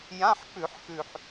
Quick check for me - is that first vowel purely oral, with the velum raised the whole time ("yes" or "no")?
no